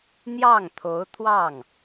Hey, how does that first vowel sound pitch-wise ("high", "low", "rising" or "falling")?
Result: falling